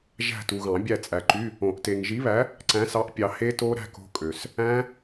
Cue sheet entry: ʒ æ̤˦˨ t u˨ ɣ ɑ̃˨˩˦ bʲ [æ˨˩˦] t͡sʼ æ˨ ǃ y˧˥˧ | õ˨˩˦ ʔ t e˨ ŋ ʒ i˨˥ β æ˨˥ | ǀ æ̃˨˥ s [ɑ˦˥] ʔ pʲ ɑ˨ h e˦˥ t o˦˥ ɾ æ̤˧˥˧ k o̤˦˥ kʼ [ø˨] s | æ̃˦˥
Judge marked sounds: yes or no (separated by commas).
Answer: no, no, yes